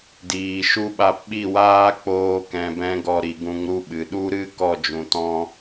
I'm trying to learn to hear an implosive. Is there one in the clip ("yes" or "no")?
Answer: yes